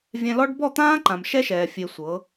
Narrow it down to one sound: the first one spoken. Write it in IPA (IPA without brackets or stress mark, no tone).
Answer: vʲ